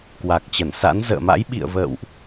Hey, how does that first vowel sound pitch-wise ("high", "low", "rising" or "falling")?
low